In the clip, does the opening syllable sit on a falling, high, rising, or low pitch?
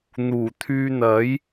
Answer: low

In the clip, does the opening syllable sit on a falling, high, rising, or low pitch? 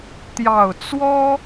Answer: low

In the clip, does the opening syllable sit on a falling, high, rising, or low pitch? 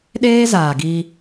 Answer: high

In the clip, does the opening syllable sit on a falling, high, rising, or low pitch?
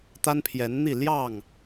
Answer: high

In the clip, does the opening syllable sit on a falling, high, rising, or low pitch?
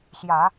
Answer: low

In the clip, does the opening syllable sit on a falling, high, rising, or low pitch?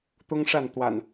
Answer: high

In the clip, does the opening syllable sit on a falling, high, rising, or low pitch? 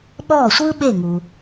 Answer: falling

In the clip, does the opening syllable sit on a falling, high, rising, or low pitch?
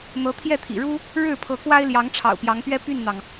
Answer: rising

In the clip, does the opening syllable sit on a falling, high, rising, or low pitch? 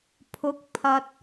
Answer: rising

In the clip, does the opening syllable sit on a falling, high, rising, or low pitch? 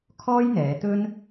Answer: high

